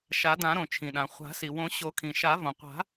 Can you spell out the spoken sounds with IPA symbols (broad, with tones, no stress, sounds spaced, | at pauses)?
ʃ a˨˩˦ d ã˨˩˦ ɾ õ˩ t͡ʃʰ ĩ˩ ɗ ã˩ χʷ a̤˨˩˦ s i˩ w õ˨˩˦ ɕ o˨˩˦ kʰ ĩ˩ ʃ a˨˩˦ v õ˩ qʷ a̤˨˩˦